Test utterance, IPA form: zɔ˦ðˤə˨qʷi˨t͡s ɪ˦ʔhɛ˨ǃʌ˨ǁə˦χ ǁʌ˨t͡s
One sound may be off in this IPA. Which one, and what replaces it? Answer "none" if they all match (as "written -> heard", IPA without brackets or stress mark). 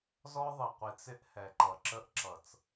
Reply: χ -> ʔ